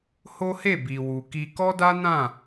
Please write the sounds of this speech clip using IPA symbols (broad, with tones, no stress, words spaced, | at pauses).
ho˦he˦˨ bi˨wu˨ki˧ kɔ˦da˦ nã˦˨